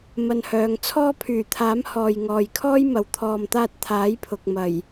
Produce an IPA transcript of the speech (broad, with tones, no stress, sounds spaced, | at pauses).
m ɐ˧ n h œː˨˧ ŋ t͡sʰ ɔː˥ pʰ yː˨˩ t̪ʰ aː˨˥ m h ɔː˨ j ŋ ɔː˨ j kʰ ɔː˥ j m ɐ˨ w t̪ʰ ɔː˨ m t̪ aː˧ t̚ t̪ʰ aː˨˥ j pʰ ʊ˨ k̚ m ɐ˨˩ j